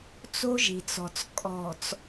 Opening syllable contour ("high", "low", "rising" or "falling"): high